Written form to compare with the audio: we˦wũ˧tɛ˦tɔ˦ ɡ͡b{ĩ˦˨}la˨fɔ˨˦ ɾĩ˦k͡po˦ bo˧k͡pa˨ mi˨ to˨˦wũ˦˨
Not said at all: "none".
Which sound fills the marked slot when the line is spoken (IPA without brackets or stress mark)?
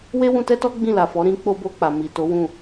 ĩ˦˨